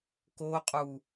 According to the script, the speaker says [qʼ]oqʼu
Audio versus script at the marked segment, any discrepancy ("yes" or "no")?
yes